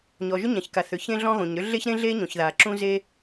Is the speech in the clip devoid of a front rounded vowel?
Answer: no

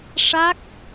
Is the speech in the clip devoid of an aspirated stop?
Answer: yes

